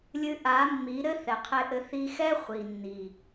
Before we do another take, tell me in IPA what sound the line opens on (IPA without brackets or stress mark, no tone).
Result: lʲ